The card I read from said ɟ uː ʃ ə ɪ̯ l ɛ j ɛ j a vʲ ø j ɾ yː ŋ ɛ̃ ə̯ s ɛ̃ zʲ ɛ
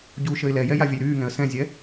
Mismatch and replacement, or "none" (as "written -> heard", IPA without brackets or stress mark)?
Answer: ø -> ə